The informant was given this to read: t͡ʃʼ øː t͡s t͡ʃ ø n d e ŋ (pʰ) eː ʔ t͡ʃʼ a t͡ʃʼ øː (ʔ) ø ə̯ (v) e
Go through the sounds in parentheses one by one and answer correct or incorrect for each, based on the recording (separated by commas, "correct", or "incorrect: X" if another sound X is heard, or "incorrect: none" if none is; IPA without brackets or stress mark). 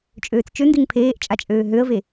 correct, incorrect: ɦ, correct